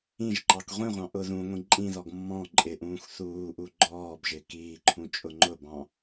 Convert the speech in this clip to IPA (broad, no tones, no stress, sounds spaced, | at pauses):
ĩ ʒ ǃ ɑ k ʁʷ ĩ ʁʷ ɑ̃ ʔ ʊ ð ũ ŋʷ ĩ ǃʼ ĩ ð ɔ ɡ mː ɔ̃ ǃʼ ɪ ʔ ũː x θ uː ʔ u ɡ͡ǃ ɔː b ʒ ɪː k iː ǃʰ ũ t͡ʃʼ ʊ ŋ͡ǃ ʊ b ɑ̃